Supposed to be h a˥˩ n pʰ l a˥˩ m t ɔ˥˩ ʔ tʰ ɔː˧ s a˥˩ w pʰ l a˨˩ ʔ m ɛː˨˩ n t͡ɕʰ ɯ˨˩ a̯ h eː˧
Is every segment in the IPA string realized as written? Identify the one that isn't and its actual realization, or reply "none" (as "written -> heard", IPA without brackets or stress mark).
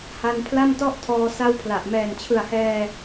eː˧ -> ɛː˧